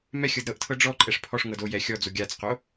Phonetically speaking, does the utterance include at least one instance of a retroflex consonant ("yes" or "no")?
yes